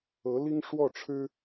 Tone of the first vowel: rising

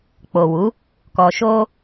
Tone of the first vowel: low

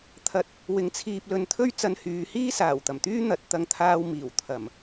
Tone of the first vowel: low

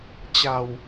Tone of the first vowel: low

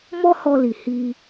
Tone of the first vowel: high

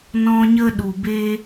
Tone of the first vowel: high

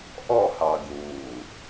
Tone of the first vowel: falling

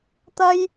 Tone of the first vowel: high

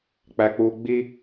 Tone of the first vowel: high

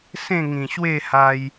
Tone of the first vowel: falling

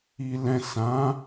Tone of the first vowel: low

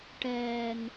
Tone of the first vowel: low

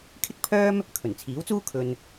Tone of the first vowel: high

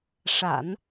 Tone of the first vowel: low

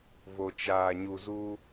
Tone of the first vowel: low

